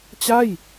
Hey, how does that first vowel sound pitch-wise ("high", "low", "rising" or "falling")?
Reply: falling